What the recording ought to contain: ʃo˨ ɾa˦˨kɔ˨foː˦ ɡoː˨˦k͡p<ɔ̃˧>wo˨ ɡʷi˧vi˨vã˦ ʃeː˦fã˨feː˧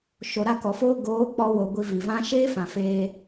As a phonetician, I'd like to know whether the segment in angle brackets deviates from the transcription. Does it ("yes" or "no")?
yes